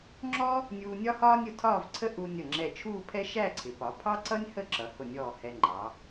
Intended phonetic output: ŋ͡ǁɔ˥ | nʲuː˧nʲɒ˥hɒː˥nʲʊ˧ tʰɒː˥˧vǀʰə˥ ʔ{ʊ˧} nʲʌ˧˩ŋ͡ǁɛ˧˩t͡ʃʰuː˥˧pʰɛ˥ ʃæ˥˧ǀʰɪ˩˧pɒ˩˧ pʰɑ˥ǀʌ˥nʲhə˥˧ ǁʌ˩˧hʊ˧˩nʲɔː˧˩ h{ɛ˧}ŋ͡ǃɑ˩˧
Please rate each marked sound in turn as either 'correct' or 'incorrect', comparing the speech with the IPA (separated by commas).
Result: incorrect, correct